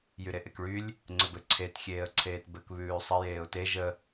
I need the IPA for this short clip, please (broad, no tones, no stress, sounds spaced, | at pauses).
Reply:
j y ɾ e ʔ e k ɭ y lʲ | ŋ͡ǀ ɘ b ɘ ǀʰ e t xʲ eː ə̯ ǀʰ eː t b ɘ k β ʉː sˤ ɘ j eː ʊ̯ t e ʒ ə